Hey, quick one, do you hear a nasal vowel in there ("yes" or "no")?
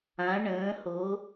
yes